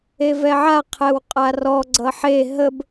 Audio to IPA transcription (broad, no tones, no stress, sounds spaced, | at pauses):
e v ɛ ʕ a qʰ ɛ w qʼ a r ɔ ɡ͡ǀ ʌ ħ e ɦ ə b